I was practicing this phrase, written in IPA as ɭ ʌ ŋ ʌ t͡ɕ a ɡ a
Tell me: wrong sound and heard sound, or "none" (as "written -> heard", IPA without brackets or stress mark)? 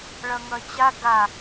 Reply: none